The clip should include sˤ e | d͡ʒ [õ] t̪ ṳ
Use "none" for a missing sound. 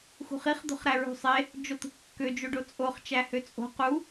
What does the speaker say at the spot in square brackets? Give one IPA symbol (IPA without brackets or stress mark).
o